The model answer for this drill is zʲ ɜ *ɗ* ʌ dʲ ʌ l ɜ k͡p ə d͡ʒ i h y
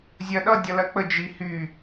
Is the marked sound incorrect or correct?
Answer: correct